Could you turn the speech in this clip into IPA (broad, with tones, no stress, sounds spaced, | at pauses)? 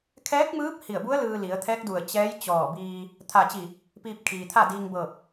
kʰ ɛː˧˥ k̚ m ɯː˧˥ p̚ h i˧˩ ə̯ b u˧˥ ə̯ l ɯː˧ l i˩˧ ə̯ t̪ʰ ɛː˧˥ k̚ d u˧˩ ə̯ t͡ɕ ɛː˧˥ j t͡ɕ ɔː˧˩ b iː˧ | t̪ʰ a˧˩ t͡ɕ i˧˩ | p iː˧ p̚ kʰ iː˩ t̪ʰ a˥˨ d iː˧ ŋ b ɤː˧˩ p̚